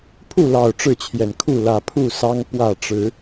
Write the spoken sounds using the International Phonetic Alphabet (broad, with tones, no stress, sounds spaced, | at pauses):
pʰ u˥˨ l ɑ˨˩ ʊ̯ ʈ͡ʂ ɻ̩˥˨ t͡ɕʰ j ɛ˨˩ n kʰ u˥˨ l ä˨˩ pʰ u˥˨ s ɑ˦ ŋ p w ä˥˨ ʈ͡ʂ ɻ̩˨˦